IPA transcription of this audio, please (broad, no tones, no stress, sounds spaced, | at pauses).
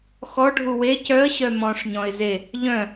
x ɔ ɖʱ u w e c œ ə̯ ɕ œ m ɔ̃ ʂ ɲ ɔ̃ ɪ̯ z e | ʎ œ̃